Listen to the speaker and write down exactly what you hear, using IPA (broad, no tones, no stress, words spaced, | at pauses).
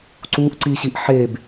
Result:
ǀuʔǀiɕiʔ ħeb